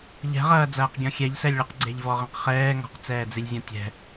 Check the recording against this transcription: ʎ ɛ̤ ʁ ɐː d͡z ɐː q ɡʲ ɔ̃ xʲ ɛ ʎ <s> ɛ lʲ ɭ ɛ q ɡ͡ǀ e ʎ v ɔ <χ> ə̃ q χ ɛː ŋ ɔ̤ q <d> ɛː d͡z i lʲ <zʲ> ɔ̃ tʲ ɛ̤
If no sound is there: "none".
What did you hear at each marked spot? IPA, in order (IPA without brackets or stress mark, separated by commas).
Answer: s, ʁ, t͡s, zʲ